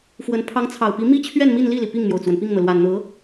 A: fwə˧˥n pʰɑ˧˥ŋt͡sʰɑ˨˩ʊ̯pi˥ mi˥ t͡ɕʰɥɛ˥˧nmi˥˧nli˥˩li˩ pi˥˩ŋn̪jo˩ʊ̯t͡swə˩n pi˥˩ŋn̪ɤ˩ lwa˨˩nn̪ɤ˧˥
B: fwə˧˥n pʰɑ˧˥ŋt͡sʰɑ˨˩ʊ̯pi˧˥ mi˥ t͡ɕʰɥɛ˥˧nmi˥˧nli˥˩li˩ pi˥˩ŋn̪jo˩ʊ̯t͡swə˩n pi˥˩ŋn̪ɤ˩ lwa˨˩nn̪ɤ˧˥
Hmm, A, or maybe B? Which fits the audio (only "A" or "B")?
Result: B